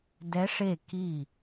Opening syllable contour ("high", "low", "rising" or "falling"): rising